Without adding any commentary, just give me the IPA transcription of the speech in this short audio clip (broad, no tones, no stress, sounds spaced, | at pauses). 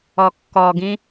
ɔ kː ɔ ɡ ĩ